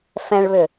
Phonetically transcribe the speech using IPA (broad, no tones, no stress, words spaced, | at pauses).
fɛ̃ɭβʏ